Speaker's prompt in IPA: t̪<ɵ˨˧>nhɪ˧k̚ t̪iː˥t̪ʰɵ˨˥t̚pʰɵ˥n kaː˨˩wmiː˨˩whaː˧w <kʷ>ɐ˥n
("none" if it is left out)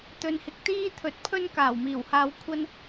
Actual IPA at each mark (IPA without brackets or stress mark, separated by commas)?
ɵ˧, kʷʰ